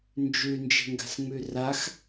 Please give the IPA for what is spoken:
nd͡ʒʉnd͡ʒe̤ŋɡa̤sŋ͡mʉ rax

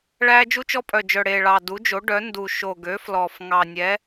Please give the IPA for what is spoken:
ɭæ˦ d͡ʒu˦t͡ʃɔ˦pʼœ˨˩d͡ʒœ˨˩ ɽe˨˩ɭɑ˨˩ du˩˥d͡ʒo˩˥ɖœ˩˥ ndu˨˩ ʃo˨˩ɡø˩˥flɔ˨˩f ŋɑ˨˩nʲɛ˩˥

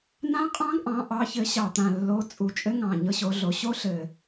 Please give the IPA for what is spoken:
nã˦˥qʼɑ̃˦˥ɡʔɑ̃˨˦ ʔɑ˨˦çɘ˨˦ɕɑ˨˩t̪ã˨˩ lːo˨˦ t͡sʼu˨˩t͡ʃʼɘ˦˥ ŋɑ̃˨˩ ɲɤ˦˥ɕo˨˦ɮo˨˦ ɕo˦˥ɬɘ˨˩

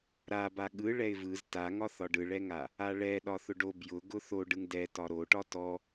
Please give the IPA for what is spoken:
ɾaba ɠɯ ɭɛɪ̯vɯz taŋɒθɒ ɖɯɭɛŋa | aɭɛ ɗɒθʊɖo bjʊ ɡʊθoɖ ɯŋdɛ tɒɾoʈɒ tɔ

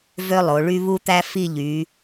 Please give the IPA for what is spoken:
vø˥lˠo˩˧ɭy˥ βu˥t̪æ˥ fi˥˧ʎy˩˧

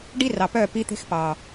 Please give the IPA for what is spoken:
ɖi˦rɑ˨pœ˦˨ pi˦t̪e̤˦xpɑ˨

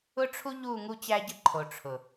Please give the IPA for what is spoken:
ʊ˦ʈ͡ʂʰu˦ ʎu˦˨ ŋu˦t͡ɕæ˦ɟə˦ǃʰo˨ ʈ͡ʂʰʊ˨

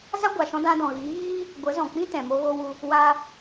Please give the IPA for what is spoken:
za˦ɡʷa˨ ʃɔ̃˧dã˧ dɔ̃˨ɣiː˨˦ ɣiː˦ | ɡʷə˨˦zɔ̃˨k͡pĩ˦ tɛ̃˨mo˧ɣo˧wu˧ | wa˦

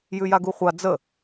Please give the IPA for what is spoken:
jʉjaɡuχʷa d͡zə

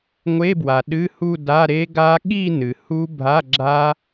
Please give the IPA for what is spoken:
ŋʷe˧˥˧bwa˩ ɗɨ˧˥˧hu˥˧da˧˥˧ ɾe˦˥ɡa˦˥ ɠi˥˧nɨ˩ hu˦˥ bʱa˧˥˧ ɡ͡ǁa˦˥

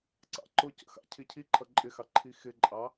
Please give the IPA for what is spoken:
ǀɑ̰ǃʊcə̰ xɑ̰cʰicʰiǃʰʌ ǃʼɪxɑ ǃʰixɪǃʼɑ

